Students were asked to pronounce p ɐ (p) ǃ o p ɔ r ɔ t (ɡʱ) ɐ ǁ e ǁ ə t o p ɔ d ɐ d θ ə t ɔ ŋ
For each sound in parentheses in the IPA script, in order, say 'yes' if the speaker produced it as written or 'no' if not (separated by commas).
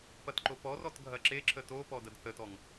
no, yes